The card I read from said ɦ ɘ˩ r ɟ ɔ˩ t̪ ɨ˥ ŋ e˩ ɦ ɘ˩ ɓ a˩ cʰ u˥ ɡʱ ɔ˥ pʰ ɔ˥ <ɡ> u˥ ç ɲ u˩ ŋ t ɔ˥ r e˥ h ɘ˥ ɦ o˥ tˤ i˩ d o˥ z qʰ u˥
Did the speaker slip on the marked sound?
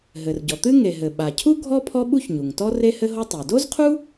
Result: yes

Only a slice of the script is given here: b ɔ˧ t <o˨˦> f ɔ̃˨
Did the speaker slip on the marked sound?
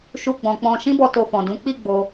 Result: yes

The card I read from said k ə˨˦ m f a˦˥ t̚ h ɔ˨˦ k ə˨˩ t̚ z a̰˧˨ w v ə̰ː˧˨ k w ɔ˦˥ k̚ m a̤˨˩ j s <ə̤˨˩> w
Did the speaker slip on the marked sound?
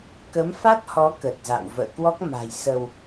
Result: yes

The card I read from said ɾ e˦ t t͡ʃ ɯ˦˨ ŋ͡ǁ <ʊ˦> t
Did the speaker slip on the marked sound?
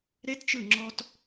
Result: yes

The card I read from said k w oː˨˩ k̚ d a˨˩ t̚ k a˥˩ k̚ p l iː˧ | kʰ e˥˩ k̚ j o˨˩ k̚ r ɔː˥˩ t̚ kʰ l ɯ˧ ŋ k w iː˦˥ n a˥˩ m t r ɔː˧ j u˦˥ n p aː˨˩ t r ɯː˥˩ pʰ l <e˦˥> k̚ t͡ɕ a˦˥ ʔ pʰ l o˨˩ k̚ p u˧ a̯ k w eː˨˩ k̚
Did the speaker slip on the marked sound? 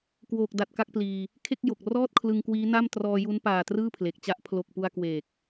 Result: yes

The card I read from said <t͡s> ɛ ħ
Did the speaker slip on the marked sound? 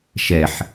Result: yes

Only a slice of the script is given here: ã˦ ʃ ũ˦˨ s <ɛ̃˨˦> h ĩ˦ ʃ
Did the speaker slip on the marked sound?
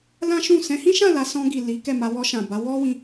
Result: no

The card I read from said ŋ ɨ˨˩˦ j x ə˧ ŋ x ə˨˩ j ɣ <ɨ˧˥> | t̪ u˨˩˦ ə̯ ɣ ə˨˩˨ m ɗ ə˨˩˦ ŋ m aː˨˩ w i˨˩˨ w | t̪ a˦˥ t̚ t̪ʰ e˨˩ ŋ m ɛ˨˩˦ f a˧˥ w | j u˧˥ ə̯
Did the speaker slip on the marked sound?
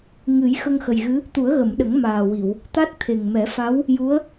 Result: no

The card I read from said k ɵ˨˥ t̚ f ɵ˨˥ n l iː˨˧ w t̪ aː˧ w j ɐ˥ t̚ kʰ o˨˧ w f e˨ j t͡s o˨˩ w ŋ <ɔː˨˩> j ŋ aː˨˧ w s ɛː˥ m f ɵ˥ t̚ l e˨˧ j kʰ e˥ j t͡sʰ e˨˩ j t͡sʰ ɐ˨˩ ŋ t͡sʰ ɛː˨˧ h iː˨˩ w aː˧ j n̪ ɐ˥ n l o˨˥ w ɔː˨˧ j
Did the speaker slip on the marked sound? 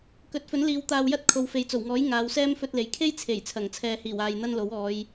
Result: yes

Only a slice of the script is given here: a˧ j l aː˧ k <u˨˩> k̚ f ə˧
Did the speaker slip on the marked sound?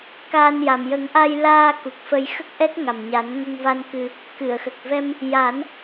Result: no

